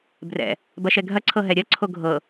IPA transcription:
b r ɛ̰ | b ɐ ʃ ɛ ɡʱ ɐ ǀʰ ɤ ɦ ɛ ɾʲ ɐ ǀʰ o ɡʱ ɤ

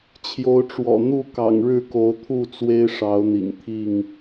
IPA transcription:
t͡ɕʰ j o˨˦ ʊ̯ ʈ͡ʂ w ɔ̰˨˩ n̪ u˥˨ k ɑ̰˨˩ ŋ ɻ ɻ̩˥˨ k o˨˦ ʊ̯ t̪ʰ u˥˨ t͡s w e˦ ɪ̯ ʂ ɑ˨˦ ʊ̯ n̪ ḭ˨˩ ŋ t̪ʰ i˥˨ ŋ

